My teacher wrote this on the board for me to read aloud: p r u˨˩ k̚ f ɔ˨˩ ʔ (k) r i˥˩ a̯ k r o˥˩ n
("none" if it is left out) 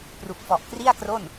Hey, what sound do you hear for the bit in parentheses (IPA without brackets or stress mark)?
k